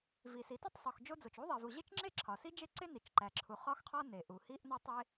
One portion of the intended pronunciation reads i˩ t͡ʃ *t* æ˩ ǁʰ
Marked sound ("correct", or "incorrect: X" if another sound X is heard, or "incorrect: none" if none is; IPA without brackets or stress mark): incorrect: ǃ